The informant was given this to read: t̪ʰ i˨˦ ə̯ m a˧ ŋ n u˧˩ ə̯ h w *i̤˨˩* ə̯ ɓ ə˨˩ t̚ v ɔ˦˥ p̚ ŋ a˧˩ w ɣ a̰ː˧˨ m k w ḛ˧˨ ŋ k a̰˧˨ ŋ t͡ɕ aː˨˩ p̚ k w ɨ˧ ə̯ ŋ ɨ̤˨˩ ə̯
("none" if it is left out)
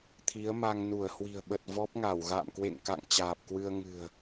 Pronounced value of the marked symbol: i̤˨˩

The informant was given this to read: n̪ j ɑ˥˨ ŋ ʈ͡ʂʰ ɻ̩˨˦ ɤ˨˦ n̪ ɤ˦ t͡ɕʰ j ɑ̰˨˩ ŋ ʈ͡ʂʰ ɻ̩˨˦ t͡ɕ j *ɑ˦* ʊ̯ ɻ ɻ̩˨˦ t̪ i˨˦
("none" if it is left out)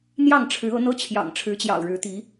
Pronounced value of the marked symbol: ɑ̰˨˩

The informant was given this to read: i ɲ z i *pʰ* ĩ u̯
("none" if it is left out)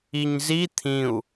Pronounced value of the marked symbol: t̪ʰ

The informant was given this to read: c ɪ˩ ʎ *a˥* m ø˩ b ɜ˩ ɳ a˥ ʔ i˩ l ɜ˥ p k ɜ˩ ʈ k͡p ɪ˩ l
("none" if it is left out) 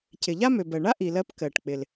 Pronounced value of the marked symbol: a˥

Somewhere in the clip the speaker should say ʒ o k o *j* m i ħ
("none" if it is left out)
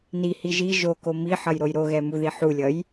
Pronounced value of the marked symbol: none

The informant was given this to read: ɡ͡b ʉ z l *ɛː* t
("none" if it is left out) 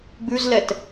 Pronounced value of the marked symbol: ɛ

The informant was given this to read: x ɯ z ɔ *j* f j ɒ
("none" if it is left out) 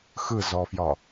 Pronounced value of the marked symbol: none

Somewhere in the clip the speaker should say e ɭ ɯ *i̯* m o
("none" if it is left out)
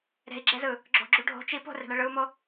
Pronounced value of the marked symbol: u̯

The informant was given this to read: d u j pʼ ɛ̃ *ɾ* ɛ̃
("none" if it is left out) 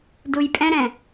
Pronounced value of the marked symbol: ɾ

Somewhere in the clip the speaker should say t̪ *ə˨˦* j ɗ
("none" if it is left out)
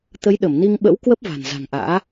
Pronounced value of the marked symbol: ə˨˦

